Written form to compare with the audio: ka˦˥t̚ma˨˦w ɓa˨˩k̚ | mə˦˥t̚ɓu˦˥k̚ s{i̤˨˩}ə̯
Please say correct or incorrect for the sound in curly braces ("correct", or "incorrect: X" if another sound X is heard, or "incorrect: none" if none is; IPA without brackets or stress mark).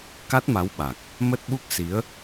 incorrect: i˨˦